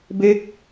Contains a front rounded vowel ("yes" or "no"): no